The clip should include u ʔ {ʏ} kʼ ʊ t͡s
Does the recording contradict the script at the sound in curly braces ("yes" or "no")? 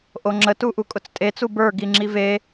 yes